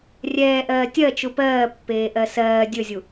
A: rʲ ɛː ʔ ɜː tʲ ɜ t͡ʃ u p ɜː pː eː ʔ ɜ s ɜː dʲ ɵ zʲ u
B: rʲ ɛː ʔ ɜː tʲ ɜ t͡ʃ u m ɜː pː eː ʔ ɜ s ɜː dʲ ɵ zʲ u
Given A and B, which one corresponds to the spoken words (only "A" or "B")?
A